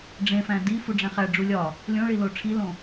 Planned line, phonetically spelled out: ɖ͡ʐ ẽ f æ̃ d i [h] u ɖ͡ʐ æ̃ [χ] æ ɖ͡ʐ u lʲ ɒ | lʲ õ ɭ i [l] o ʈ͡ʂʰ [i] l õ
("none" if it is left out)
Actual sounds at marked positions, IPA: f, χ, l, i

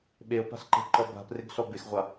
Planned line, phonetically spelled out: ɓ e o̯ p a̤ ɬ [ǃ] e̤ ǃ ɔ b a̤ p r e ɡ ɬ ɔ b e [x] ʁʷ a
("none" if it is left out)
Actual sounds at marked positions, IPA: ǃ, x

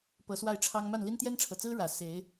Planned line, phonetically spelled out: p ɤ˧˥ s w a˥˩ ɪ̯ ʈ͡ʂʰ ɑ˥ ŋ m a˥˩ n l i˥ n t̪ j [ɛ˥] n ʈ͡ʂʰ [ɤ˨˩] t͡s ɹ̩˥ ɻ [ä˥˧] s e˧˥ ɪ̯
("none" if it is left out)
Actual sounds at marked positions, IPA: ɛ˥, ɤ˨˩, ä˨˩

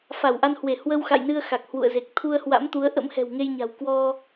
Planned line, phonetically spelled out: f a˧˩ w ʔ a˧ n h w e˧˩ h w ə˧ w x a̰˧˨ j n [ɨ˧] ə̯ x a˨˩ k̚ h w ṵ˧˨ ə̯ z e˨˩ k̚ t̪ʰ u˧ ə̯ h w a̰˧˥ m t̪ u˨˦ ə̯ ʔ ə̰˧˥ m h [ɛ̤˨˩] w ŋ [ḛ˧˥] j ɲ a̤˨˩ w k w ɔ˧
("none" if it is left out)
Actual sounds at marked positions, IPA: ɨ˧, ɛ̤˨˩, e˧

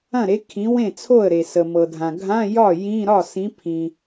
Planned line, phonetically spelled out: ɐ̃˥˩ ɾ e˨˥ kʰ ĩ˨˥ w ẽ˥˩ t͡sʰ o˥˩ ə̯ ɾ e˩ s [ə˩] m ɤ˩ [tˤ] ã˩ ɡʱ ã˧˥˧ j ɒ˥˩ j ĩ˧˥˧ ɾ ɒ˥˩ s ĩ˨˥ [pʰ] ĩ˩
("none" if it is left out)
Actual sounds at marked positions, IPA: ə˩, dʱ, pʰ

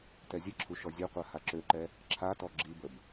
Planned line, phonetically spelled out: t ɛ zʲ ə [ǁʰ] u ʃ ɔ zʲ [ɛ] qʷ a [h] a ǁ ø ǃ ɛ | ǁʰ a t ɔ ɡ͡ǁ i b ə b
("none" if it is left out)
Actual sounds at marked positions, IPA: ǁʰ, ø, h

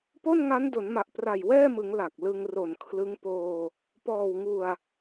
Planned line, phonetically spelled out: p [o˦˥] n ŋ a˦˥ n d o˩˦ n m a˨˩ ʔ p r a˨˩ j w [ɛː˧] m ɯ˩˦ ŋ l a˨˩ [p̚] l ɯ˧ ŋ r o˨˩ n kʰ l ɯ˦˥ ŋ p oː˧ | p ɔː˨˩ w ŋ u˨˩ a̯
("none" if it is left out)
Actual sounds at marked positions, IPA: o˥˩, ɛː˥˩, k̚

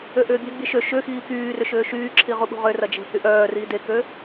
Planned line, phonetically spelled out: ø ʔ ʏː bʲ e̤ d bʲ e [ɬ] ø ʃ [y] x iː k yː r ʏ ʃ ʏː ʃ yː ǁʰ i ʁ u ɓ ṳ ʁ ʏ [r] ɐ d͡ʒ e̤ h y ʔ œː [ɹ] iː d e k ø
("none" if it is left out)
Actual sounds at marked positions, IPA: ʃ, ʏ, r, r

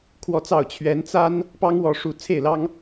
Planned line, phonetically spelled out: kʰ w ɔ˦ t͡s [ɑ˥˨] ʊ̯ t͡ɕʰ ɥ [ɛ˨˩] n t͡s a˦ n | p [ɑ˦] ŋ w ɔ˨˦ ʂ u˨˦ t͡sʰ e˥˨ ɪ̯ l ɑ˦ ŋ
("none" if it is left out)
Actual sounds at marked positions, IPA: ɑ˥˨, ɛ˨˦, ɑ˦

